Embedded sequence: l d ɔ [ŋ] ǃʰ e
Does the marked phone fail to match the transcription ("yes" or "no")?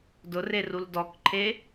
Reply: yes